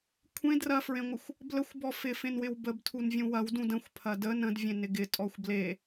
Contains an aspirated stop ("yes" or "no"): yes